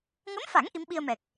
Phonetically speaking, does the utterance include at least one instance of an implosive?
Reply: yes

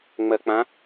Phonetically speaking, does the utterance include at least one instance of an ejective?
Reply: no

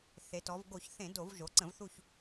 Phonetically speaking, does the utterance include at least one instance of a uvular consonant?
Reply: no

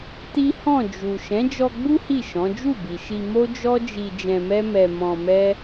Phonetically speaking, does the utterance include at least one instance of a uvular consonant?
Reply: no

